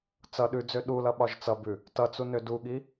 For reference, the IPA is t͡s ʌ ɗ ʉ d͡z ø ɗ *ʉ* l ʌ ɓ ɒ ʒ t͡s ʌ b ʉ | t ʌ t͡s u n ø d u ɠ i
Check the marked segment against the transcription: incorrect: u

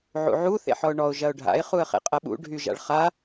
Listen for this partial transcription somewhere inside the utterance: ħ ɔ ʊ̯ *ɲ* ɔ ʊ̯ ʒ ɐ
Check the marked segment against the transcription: incorrect: ɳ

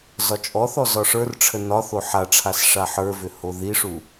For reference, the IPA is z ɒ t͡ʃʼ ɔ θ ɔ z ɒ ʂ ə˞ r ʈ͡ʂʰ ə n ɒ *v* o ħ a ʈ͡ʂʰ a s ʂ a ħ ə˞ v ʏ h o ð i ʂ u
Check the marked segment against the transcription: incorrect: θ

